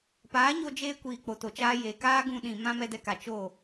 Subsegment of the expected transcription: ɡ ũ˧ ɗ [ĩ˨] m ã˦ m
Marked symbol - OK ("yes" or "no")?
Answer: yes